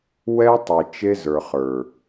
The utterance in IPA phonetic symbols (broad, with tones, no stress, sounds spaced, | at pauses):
w ɛ˦ tˤ i˨ t͡ʃ e˦ z ə˞˨ χ ə˞˨